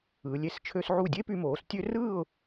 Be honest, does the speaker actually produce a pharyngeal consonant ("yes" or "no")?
yes